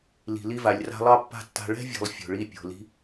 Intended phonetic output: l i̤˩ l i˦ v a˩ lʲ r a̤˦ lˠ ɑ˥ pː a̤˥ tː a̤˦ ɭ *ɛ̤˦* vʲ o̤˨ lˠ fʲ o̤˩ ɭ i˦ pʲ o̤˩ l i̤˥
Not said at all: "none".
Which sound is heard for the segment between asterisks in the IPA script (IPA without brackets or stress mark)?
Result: ɛ̤˥